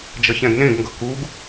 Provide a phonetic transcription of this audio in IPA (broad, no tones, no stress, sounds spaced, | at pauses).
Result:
d͡ʒ ʌ ç ɛ̃ ɡ n ẽ ɡ ŋ ɡ ʌ k u ɡ